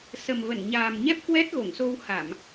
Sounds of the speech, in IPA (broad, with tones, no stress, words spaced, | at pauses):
sə˨˩mvə˧˩nɲaː˨˩m ɲɛ˦˥p̚kwɛ˦˥t̚ ɣo˧˩ŋso˧wha˧˩˨m